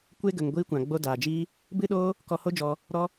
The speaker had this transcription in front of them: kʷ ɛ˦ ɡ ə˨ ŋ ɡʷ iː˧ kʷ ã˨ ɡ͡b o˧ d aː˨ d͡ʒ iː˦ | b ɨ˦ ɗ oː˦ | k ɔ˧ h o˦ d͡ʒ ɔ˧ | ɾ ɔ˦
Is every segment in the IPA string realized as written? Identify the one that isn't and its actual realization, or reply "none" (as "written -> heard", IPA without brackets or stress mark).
ɛ˦ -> e˦